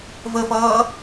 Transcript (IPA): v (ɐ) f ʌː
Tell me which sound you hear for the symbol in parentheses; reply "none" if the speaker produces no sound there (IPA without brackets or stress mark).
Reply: ə